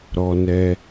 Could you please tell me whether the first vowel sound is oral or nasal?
oral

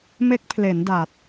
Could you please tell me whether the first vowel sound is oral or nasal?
oral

